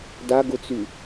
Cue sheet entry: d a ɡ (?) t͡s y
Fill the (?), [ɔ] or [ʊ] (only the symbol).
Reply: ʊ